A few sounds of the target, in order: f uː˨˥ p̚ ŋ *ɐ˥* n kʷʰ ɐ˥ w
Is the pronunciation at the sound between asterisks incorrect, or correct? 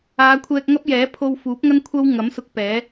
correct